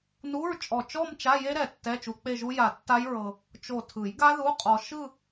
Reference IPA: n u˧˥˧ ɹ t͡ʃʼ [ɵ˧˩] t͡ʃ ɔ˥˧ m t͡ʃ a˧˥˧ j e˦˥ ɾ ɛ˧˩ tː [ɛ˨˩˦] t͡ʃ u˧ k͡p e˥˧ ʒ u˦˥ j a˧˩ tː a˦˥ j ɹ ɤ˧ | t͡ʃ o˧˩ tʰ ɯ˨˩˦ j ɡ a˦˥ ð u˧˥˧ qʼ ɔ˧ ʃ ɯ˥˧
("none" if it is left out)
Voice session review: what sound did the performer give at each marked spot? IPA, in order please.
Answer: ɔ˧˩, ɛ˧˥˧

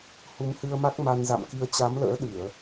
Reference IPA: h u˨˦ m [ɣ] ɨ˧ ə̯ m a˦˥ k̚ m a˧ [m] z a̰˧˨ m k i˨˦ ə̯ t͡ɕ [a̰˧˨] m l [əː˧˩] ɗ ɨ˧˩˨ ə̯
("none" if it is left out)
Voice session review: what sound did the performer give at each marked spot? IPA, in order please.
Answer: h, n, a˨˦, ə̰ː˧˥

